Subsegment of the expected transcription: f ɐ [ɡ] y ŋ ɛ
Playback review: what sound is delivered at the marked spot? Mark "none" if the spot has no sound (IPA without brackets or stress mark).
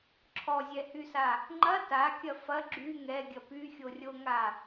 ɡ͡ǁ